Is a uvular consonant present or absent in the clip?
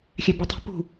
absent